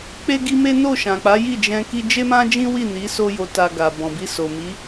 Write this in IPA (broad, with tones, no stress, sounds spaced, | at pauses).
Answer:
k͡p e˧ ɡ i˧ m e˦ n o˦˨ ʃ ã˨ k͡p a˨˦ j i˦˨ d͡ʒ ɛ̃˧ k i˧ d͡ʒ e˦ m ã˦ d͡ʒ ĩ˦ w i˦˨ n i˨˦ s o˦ j o˧ t a˧ ɡ a˨ b ɔ̃˨ b i˧ s o˨ m i˨˦